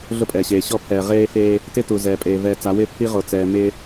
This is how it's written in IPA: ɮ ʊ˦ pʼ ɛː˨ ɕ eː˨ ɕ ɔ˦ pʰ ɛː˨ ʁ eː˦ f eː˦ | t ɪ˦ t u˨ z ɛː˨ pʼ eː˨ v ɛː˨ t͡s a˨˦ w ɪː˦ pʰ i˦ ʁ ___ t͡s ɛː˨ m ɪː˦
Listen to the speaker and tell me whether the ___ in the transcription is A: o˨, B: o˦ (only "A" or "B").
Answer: A